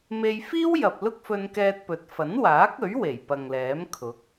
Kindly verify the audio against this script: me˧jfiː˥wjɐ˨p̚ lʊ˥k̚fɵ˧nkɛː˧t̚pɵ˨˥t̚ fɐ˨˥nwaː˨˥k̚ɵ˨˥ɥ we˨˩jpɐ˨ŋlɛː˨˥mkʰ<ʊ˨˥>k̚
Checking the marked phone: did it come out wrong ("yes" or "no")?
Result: no